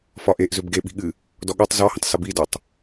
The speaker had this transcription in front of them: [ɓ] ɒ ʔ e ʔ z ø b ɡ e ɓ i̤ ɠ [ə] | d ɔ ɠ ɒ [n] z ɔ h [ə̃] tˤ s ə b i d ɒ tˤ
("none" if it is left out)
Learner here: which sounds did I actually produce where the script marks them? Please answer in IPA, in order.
f, ɨ, tˤ, ə̃

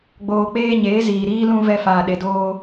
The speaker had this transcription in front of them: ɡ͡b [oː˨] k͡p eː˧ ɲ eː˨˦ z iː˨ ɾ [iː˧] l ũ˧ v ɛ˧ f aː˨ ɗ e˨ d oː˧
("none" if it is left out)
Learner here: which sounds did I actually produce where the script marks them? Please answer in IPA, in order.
oː˨, iː˦

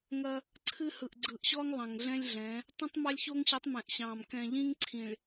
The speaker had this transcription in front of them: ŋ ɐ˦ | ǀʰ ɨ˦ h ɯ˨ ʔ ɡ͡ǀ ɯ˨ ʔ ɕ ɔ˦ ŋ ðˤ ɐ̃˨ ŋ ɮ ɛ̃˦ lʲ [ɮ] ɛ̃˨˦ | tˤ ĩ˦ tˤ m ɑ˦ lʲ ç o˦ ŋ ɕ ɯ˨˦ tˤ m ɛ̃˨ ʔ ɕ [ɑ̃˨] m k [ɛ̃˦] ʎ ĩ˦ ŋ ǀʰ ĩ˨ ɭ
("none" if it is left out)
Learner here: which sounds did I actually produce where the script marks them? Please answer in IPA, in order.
ɮ, ɑ̃˨, ɛ̃˨

